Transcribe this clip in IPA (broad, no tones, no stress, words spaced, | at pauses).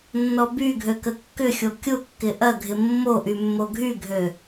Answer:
nːɔby ɡʱøkəkːʏxʲo kʲʊkːɪ ʔɐɡʱɪ mːoʔymːo ɡʱyɡʱø